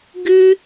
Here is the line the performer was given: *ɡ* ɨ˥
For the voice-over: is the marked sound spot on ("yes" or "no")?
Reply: yes